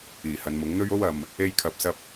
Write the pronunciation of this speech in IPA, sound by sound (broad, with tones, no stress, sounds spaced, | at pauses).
iː˨˩ h ɐ˨˧ n m ʊ˨˥ ŋ n̪ ɵ˥ ɥ o˥ w ɐ˨ m | e˥ j kʰ ɐ˧ p̚ s ɐ˥ p̚